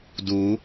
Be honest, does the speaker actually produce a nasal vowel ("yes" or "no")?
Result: no